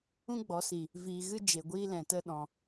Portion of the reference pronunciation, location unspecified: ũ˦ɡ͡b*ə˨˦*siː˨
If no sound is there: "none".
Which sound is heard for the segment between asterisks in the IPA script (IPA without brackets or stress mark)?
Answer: ɔ˨˦